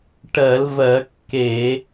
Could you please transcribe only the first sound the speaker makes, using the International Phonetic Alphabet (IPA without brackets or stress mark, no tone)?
ʈ